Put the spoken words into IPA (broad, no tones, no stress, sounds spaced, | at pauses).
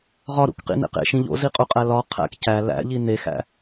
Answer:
ʁ ɒ ɾ ṵ k q ḭ n ḛ q ḛ ʃ ĩ ʎ o̰ z i qʼ u qʼ æ l ɒ qʰ æ̰ k c æ l æ̰ ʎ i n e x æ̰